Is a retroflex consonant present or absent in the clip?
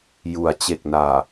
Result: absent